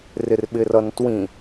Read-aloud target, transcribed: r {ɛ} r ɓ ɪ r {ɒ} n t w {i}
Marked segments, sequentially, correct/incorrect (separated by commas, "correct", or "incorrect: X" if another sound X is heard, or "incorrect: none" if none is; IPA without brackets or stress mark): incorrect: ɪ, incorrect: ʌ, incorrect: ĩ